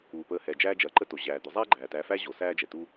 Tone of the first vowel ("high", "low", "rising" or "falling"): low